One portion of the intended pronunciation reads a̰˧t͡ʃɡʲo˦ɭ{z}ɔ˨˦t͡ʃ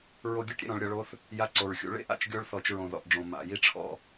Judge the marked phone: incorrect: θ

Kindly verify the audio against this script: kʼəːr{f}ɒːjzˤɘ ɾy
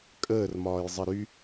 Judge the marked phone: incorrect: m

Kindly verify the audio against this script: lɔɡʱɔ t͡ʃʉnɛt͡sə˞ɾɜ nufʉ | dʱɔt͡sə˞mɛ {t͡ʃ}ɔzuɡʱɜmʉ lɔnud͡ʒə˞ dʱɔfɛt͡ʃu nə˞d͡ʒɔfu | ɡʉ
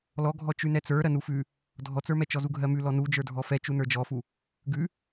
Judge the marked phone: correct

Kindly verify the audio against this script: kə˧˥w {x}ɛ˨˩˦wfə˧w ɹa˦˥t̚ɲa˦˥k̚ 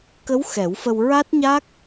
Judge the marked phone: correct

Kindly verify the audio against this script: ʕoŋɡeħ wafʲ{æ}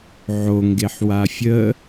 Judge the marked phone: incorrect: ə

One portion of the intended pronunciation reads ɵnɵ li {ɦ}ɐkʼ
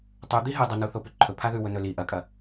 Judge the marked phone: incorrect: ʔ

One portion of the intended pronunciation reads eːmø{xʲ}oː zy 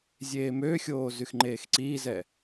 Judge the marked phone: correct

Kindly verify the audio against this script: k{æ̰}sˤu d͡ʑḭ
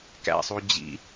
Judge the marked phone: correct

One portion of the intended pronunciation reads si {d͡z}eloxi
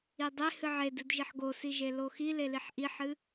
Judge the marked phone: incorrect: ʒ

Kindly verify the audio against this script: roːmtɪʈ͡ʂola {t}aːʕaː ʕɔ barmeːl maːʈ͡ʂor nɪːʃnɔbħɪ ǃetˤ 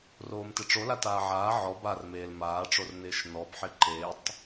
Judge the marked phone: correct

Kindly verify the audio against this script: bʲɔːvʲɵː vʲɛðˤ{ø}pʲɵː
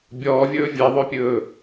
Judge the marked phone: correct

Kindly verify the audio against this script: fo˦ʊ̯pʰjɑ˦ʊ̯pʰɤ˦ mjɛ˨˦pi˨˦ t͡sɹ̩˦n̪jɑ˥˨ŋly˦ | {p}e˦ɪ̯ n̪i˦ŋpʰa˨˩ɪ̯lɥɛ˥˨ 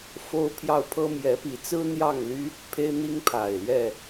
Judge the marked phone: incorrect: pʰ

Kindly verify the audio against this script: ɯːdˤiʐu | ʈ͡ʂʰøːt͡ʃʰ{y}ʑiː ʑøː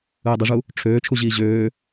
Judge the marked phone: incorrect: u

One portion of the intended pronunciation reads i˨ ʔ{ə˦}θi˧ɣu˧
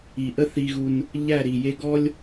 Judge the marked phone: correct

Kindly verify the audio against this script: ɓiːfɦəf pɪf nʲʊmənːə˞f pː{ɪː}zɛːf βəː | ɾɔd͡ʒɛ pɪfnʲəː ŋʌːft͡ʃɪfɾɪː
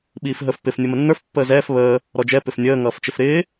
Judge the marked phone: incorrect: əː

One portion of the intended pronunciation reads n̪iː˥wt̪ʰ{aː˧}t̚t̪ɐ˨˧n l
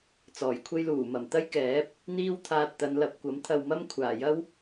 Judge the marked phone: correct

